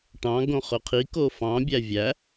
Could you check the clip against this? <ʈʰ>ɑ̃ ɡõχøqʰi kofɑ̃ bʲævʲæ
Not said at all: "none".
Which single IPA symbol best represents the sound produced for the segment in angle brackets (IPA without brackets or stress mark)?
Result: ʈ